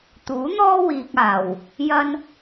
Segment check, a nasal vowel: absent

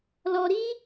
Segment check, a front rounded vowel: absent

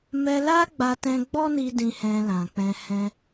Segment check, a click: absent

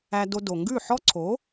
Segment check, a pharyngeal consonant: present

